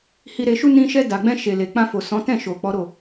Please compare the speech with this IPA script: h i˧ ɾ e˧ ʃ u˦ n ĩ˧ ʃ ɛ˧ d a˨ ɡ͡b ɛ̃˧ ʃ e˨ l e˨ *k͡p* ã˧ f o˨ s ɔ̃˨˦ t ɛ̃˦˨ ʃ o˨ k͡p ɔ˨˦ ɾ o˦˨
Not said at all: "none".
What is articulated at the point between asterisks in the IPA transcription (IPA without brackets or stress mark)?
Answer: k͡p